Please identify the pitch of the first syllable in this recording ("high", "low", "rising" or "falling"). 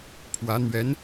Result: rising